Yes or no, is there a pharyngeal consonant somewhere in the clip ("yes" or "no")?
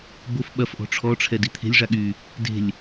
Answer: no